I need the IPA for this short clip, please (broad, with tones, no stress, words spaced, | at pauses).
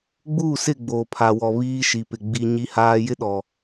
ɡ͡buː˦˨sɪ˦˨ ɡ͡boː˨pʰa˨wɔ˨ βiː˦ʃi˨pɪ˨ ɡ͡bi˨ ɲi˦haː˦ jɪ˦ɗɔ˨